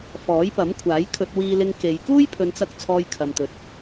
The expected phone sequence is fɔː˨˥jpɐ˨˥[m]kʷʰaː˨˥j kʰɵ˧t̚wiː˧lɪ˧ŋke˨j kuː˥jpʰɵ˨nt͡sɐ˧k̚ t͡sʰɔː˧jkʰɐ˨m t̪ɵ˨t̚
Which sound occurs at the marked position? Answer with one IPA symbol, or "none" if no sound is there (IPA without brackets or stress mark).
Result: m